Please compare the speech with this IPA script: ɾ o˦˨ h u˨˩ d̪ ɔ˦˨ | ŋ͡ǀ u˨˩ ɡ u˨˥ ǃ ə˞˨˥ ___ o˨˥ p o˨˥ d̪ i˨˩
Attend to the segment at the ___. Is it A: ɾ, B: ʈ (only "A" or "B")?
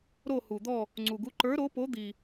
A